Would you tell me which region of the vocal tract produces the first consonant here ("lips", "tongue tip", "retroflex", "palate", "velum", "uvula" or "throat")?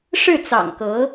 retroflex